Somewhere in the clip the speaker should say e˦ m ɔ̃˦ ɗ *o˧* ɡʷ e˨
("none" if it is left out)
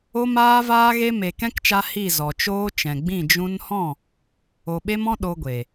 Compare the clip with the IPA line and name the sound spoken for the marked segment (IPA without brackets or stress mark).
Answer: o˧